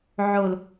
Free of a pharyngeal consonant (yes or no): no